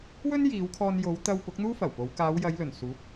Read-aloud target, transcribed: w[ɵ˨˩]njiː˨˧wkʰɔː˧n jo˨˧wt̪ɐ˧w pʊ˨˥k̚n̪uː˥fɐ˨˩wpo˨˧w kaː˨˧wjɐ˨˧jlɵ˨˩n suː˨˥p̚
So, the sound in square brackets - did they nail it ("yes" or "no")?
no